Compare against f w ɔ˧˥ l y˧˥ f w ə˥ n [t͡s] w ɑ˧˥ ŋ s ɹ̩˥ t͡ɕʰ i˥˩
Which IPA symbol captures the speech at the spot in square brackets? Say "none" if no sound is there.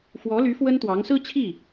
t̪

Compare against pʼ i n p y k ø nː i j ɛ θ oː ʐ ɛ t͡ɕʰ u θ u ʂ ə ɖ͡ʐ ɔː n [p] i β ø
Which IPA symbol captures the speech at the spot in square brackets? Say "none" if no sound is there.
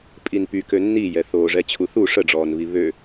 β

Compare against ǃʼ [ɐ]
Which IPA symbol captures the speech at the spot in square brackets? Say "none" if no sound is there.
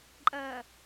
ɐ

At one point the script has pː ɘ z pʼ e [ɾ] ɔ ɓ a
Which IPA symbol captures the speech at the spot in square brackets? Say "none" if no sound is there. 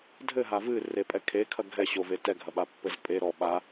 ɾ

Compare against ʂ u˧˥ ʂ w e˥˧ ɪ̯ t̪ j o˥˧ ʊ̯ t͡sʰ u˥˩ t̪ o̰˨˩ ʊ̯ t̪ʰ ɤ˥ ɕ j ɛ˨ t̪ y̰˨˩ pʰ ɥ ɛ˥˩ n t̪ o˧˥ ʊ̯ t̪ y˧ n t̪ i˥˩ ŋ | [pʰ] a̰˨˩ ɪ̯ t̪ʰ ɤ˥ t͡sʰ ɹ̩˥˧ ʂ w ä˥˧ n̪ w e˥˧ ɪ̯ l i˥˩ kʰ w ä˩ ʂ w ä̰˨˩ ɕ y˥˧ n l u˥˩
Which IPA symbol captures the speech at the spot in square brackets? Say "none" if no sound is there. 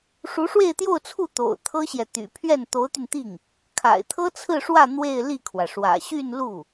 kʰ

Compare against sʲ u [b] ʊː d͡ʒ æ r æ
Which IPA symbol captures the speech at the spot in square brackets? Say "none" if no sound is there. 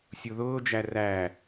ð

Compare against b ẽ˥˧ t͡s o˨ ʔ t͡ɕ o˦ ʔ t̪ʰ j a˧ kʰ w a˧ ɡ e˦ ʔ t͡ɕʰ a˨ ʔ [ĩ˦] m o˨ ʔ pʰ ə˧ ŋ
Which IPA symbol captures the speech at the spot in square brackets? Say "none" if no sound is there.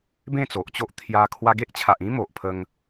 ĩ˦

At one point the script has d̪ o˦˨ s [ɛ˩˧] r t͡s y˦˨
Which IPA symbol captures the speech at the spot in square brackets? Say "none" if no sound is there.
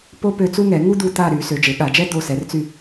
ɛ˩˧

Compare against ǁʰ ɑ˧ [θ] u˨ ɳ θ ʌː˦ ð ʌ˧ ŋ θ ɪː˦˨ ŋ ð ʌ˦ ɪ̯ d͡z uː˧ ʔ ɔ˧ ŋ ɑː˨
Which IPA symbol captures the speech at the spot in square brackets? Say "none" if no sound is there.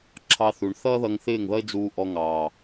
θ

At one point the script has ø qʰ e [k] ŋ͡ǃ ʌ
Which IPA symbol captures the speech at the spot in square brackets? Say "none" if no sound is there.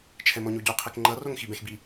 k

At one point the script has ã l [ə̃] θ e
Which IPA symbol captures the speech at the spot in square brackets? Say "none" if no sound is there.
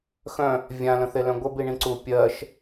ə̃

